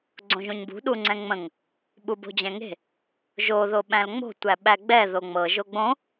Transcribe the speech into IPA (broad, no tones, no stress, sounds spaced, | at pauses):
ɡ͡ǀ õ ʒ ũ ɲ b ṳ ɗ u ŋ͡ǀ ɛ̃ ŋ͡m ə̃ ŋ | ɓ u b o̤ d͡ʑ ɛ̃ ŋ e̤ | ʒ o ð o ɓ æ̃ l ŋ͡m o̤ tʷ æ ɓ æ ɡ͡b ɛ ð o ŋ͡m ɤ ʒ o ɡ͡b õ